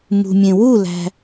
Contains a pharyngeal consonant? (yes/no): no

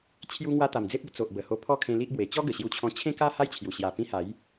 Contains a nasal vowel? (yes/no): yes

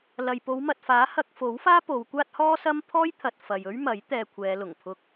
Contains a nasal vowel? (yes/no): no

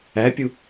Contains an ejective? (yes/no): no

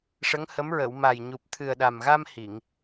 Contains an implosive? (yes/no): yes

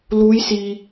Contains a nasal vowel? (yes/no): no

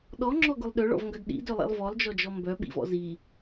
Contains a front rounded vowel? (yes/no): yes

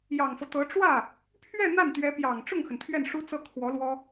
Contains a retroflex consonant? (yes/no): yes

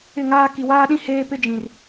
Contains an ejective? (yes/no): no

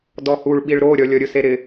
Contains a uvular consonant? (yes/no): no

